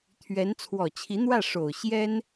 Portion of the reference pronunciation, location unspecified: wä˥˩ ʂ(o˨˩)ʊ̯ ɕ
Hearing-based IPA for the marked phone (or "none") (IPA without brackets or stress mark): o˨˩